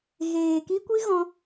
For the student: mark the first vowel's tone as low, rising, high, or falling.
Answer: low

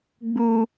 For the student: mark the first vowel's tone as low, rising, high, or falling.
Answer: high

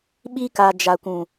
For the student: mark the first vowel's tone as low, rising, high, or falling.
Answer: high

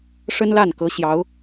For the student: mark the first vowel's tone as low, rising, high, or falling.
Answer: high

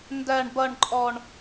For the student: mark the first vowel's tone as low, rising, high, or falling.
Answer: low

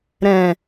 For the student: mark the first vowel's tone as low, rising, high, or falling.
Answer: low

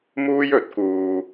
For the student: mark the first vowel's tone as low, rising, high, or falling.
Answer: high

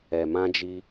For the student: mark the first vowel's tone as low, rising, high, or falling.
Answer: low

